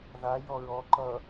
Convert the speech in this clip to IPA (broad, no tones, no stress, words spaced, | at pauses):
ða jɔɹɔ ǃʌ